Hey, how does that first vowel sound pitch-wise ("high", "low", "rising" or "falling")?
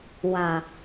low